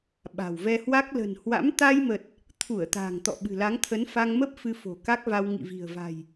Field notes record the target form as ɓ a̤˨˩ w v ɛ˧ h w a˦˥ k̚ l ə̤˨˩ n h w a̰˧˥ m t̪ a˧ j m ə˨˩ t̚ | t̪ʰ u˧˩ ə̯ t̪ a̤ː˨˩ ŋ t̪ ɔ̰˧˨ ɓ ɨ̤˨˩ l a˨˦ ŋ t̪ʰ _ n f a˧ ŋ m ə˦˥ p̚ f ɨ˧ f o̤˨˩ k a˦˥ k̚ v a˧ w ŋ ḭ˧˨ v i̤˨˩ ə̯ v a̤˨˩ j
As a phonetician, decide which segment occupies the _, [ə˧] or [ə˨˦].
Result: ə˨˦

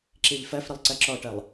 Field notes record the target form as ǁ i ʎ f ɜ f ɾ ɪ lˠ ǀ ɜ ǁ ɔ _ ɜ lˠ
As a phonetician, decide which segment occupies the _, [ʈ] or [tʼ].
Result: ʈ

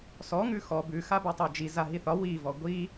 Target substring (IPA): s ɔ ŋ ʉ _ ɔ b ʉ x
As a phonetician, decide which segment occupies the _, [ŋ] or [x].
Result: x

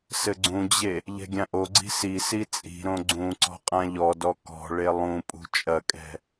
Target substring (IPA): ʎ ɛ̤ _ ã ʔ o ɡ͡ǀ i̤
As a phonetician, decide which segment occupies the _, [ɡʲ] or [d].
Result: ɡʲ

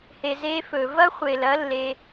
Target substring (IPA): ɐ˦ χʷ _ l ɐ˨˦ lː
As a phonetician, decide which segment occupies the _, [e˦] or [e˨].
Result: e˨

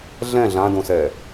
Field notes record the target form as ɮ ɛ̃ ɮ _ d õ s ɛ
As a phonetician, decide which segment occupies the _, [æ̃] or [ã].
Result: ã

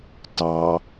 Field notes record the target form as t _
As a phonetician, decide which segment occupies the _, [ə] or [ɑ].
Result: ɑ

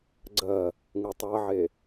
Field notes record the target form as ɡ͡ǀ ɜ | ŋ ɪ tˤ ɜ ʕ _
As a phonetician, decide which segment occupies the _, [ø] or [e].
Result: e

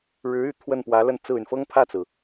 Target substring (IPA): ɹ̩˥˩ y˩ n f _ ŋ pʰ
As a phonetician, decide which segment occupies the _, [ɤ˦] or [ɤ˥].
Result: ɤ˥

